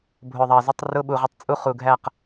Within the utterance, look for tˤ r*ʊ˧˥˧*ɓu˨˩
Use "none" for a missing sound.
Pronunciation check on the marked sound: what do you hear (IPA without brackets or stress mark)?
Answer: ʊ˧˥˧